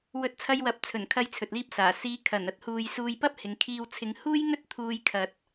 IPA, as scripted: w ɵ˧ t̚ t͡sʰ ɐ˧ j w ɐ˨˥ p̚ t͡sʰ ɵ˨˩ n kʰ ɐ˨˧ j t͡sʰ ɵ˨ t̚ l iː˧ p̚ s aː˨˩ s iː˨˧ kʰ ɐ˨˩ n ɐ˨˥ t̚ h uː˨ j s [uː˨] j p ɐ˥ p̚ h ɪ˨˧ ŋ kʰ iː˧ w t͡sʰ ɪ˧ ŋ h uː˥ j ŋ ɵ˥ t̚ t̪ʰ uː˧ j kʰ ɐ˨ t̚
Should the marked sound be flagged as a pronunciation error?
yes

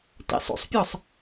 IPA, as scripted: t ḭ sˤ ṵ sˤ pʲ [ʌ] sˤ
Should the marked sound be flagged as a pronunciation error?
yes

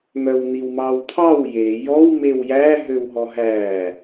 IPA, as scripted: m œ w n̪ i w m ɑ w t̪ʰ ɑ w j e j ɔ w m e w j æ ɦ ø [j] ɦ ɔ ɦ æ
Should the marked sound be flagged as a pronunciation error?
yes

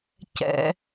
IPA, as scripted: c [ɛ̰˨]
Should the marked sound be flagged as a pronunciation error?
yes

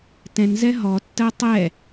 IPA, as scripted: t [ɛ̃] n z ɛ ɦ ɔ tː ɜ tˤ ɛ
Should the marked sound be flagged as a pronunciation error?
no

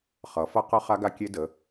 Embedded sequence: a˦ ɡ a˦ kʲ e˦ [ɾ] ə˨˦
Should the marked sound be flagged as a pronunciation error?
yes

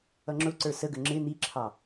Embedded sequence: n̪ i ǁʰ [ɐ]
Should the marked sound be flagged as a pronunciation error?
yes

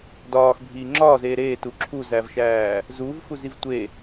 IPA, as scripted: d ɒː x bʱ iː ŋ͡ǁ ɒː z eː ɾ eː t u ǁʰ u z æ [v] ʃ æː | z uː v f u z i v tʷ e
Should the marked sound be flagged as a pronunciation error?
no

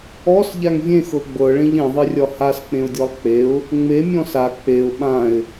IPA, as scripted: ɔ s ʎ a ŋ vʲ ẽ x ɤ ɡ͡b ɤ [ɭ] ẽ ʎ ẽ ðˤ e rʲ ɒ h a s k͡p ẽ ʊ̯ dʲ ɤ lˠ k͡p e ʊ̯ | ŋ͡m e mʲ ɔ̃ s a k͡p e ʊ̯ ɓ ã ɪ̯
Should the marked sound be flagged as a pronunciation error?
no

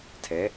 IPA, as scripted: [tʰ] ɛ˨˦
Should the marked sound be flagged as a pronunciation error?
no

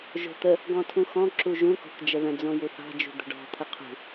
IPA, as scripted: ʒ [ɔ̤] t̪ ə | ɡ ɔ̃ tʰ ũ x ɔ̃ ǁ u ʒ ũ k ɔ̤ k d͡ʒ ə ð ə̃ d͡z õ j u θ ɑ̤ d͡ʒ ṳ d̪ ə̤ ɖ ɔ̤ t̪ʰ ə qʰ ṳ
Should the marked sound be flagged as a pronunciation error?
yes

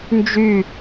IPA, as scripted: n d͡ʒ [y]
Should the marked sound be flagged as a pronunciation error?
no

